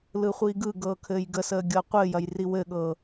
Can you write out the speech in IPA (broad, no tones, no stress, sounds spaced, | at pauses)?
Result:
l ɯ χʷ iː ɡ ɯ ɡ ɤː kʰ ɘː j ɡ ə s əː ɡʲ ɤ qʷ ɘː j ɐ j r i w ɘ ɠ ɤ